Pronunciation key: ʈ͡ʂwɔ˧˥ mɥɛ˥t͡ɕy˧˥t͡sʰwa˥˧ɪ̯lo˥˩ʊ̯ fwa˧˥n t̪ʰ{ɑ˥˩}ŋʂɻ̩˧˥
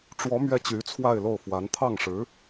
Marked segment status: correct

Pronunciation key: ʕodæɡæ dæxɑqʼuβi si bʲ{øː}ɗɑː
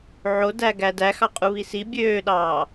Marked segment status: correct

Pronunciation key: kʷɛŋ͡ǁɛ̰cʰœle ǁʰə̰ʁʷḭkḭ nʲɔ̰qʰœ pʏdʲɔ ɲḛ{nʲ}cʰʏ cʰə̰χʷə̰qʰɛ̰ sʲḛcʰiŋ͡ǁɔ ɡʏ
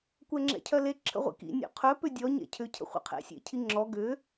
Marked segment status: incorrect: none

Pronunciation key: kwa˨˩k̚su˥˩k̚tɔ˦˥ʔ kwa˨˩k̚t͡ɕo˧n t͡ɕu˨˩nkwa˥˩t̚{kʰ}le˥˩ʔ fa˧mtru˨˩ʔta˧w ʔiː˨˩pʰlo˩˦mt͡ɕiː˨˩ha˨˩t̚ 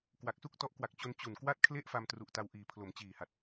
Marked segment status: correct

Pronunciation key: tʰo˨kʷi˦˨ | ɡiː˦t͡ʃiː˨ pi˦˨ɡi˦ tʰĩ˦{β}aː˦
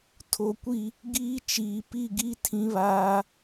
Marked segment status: correct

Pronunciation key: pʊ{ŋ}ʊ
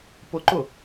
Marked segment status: incorrect: ǃ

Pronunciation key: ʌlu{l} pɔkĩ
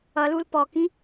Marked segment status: correct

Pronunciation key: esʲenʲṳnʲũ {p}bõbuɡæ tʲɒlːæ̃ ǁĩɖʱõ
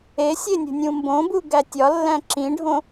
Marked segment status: incorrect: m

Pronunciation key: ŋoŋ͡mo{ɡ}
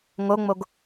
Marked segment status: correct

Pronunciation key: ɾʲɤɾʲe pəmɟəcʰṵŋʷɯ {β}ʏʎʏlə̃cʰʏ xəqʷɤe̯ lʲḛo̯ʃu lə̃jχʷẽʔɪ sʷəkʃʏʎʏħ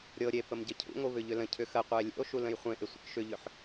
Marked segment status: correct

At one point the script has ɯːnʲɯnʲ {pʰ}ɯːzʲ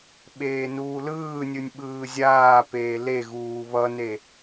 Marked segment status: incorrect: ɓ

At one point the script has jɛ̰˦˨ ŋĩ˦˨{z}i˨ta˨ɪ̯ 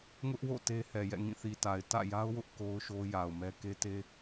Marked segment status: incorrect: θ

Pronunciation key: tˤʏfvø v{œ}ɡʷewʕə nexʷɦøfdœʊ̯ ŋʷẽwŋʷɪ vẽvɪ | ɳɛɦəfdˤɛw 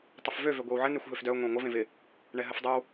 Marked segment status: incorrect: ø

